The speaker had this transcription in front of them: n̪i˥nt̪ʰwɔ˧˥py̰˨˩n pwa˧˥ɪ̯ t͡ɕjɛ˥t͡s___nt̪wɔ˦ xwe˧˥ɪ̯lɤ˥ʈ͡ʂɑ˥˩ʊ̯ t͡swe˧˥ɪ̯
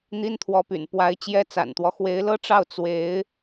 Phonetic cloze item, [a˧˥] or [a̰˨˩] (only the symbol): a̰˨˩